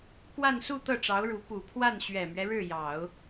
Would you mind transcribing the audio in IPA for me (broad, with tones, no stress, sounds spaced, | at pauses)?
k w a˥˧ n s u˥˧ t̪ ɤ˥˩ ʈ͡ʂ ɑ˧˥ ʊ̯ ɻ u˧˥ p u˨˩ pʰ w a˥˩ n ɕ ɥ ɛ˨˩ m ɥ ɛ˦ ɻ ɻ̩˥˩ j ɑ˨˩˦ ʊ̯